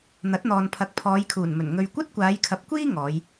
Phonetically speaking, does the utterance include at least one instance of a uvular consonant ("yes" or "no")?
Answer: no